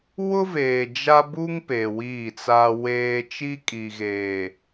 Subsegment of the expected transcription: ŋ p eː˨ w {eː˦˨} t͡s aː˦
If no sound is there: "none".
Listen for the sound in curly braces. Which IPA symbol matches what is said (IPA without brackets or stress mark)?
iː˦˨